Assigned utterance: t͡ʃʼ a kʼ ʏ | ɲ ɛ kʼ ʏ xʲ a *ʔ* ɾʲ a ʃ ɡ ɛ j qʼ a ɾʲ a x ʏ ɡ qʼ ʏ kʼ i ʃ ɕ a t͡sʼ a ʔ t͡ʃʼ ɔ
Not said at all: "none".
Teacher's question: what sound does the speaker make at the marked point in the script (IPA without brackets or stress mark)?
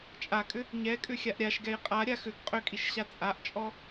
ʔ